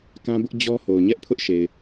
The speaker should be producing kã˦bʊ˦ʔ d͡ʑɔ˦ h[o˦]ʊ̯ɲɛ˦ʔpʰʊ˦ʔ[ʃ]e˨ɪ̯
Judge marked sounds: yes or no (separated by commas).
no, yes